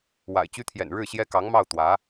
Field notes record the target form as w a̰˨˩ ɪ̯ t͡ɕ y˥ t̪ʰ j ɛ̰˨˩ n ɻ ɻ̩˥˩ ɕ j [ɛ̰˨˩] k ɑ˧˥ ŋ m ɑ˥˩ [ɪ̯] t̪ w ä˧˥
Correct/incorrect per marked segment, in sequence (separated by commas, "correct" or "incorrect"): incorrect, incorrect